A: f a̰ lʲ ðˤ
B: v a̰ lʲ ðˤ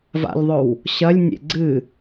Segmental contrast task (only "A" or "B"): B